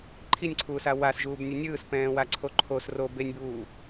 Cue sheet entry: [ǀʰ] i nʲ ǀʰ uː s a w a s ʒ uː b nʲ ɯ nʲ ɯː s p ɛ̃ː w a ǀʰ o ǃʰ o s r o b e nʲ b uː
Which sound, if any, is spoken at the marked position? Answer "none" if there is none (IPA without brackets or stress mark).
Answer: ǃʰ